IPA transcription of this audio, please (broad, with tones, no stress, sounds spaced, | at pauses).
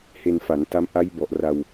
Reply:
h e˧ n f a˩˦ n t a˦˥ m ʔ a˦˥ j b ɔ˨˩ ʔ r a˧ w